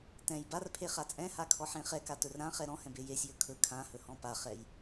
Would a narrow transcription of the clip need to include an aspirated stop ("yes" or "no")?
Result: yes